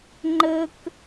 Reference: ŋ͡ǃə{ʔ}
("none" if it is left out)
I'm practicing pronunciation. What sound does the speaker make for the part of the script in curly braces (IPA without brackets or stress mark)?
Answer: k